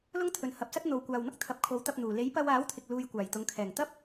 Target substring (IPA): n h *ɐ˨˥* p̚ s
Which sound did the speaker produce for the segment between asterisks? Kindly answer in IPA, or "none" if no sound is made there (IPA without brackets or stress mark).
ɐ˨˥